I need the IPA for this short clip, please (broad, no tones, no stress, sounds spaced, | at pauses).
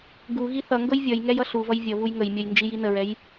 ɡ u ɣ i θ ʌ ŋ ɡ ɤ j vʲ ʌ j ŋ ɛ j ʌ ɬ u v ʌ j vʲ ʌ β u j ŋ ə j mʲ ʌ j n d͡ʒ i j i n ə ɹ ɛ j